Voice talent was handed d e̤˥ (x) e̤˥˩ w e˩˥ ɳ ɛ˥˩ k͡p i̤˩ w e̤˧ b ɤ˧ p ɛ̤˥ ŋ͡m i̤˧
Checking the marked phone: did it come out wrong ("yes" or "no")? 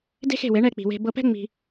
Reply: no